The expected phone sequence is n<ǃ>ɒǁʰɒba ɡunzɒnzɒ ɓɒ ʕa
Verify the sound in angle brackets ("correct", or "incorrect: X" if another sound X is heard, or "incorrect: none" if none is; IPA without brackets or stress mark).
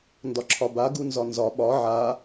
incorrect: d